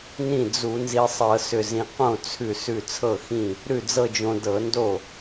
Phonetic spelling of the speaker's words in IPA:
n ĩ˥˩ d͡z u˧˩˧ n z i˧ sˤ ɤ˧˩˧ s ʏ˧˩ z ĩ˧ q õ˥˩ t͡sʰ ʉ˧˩ s ʉ˧˩ t͡sʰ ɤ˥˩ x ĩ˥˩ | ɾ ʉ˥˩ d͡z ɤ˥˧ d͡ʒ õ˧ d ɤ˧˩˧ n d o˥˩

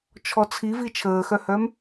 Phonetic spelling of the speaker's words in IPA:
t͡ʃʰ ɔ t͡sʰ i v i t͡ʃʰ əː x œ h œ m

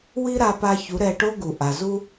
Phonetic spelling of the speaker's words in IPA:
w i˦ ɾ a˧ p a˧ ç u˨˦ ɾ ɛ˧ ʈ o˦ ɡ u˨ ʔ a˨ z u˧

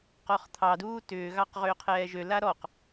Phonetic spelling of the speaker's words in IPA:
q ɔ χ t̪ʰ ɑ d uː t ʏː ɣ ɑ q ʁ ʏː qʰ ɛː ʒ ø l a ɾ ɔ q

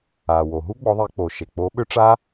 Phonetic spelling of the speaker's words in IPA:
a˩ w o˩ ɦ u˦˥ ɡ͡b ɔ˨˦ ðˤ e˨˦ k͡p o˩ ʃ e˩ k͡p o˨˦ ɓ ʏ˦˥ ʈ͡ʂ a˦˥

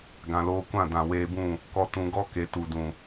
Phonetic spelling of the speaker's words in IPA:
ɡ ã˨ l oː˧ kʷ ã˦˨ d ã˨ w eː˧ b ũ˦˨ | k ɔ˧ t ũ˧ ɡ ɔ˦ k e˨ t u˨ d ũ˨

